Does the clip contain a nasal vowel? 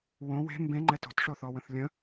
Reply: yes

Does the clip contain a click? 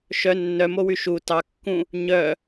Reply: no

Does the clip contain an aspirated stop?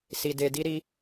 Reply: no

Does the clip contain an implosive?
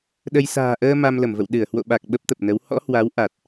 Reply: yes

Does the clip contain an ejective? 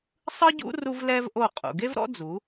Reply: yes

